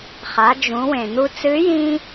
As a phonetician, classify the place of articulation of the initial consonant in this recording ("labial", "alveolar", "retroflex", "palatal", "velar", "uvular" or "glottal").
uvular